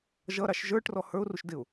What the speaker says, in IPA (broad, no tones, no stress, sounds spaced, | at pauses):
ʒ ʌ ɾ ɑ ʃ ʒ ə˞ ʈ r ɔ h ə˞ ʊ̯ r u ʃ d ɪ ʊ̯